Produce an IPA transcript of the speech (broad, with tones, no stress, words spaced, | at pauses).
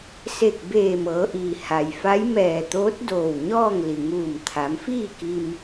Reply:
se˧˩k̚beː˧˩ mɤː˩˧ʔiː˩ ha˩jfa˧˥j mɛː˧˩t̪oː˧˥t̚doː˧˩w ɲɔː˥˨ŋ li˩ŋuː˧˩mt̪ʰa˩˧m fiː˥˨ki˧m